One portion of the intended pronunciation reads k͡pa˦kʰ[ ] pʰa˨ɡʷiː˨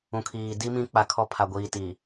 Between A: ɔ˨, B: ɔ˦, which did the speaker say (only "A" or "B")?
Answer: B